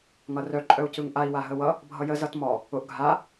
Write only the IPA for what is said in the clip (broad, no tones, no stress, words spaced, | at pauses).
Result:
ŋʌrœ ǃʼœu̯cɯŋʔai̯ waɦəwʌ | bʱʌjə zʌtmɔ | ʊʔ ɡʱa